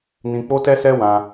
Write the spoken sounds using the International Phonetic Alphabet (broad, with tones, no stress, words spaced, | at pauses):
nĩ˧k͡po˦ tɛ˦sɛ˦wã˧